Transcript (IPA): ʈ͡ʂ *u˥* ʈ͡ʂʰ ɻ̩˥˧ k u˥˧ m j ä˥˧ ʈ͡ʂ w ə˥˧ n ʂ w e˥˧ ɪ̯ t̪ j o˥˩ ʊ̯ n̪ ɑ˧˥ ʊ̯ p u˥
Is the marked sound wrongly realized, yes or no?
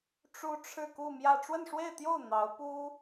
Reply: no